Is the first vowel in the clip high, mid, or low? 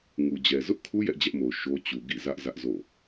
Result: high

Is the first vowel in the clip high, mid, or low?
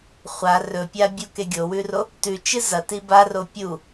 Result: low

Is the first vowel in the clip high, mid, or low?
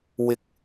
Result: high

